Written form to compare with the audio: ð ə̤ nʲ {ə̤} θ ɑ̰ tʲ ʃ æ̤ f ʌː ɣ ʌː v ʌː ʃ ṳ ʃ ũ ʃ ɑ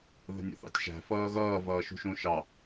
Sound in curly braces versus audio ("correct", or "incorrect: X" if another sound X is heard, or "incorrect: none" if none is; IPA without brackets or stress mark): incorrect: ə̰